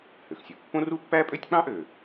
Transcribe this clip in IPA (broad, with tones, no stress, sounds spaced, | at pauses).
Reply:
h ø˩ x sʲ ɯ˩ pː õ˥ r u˥ pː æ˥ pʼ ø˥ tʲ k͡p ɑ̃˥ ʔ ø˩